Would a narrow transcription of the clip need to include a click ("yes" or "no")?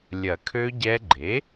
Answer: yes